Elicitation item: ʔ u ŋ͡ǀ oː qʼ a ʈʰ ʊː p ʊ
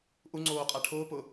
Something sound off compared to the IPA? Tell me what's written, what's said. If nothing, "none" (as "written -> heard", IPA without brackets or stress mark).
none